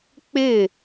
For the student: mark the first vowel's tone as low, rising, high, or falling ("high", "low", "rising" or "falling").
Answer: falling